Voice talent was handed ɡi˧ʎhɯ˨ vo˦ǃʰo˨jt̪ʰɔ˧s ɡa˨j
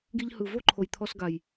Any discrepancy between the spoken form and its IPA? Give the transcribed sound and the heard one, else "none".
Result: none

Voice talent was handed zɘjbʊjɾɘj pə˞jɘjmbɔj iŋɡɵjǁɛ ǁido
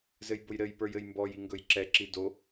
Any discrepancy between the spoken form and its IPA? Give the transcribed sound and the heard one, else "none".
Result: none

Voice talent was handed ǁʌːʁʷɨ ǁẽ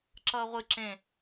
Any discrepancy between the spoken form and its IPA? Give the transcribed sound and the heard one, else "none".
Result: none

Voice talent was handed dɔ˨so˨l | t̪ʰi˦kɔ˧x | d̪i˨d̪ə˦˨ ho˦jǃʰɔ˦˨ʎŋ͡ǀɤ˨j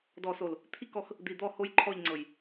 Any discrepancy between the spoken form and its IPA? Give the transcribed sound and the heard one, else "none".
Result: ə˦˨ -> ɔ˦˨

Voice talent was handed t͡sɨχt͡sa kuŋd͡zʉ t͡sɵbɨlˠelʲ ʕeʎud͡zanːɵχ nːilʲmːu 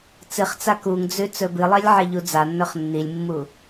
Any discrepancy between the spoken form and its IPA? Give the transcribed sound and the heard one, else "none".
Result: none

